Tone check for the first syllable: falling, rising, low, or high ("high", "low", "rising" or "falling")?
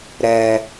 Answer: low